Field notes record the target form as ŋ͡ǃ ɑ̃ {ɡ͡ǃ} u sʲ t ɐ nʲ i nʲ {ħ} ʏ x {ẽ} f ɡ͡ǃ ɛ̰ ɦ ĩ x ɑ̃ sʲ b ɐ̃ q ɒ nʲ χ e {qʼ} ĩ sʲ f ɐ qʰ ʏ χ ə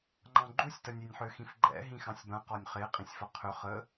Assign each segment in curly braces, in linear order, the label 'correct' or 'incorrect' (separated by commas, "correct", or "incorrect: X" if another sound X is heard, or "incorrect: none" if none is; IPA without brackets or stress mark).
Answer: correct, correct, incorrect: ĩ, correct